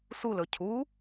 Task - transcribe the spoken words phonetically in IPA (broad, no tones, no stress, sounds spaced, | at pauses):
s u l ɵ cʰ u